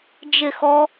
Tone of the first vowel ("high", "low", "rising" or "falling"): falling